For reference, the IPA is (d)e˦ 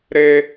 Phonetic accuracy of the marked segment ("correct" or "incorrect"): incorrect